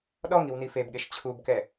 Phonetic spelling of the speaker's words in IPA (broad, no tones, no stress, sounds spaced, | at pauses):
ɗ ɔ ŋ i w n i f e b ɠ e ʃ t͡ɕʰ u b k ɛ